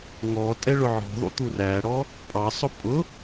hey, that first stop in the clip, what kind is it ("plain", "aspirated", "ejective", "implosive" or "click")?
ejective